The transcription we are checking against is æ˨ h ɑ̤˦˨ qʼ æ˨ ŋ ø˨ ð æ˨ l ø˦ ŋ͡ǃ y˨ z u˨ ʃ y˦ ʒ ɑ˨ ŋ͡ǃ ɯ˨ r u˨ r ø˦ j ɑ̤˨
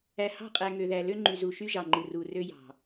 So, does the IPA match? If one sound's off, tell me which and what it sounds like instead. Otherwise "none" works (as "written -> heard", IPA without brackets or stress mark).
none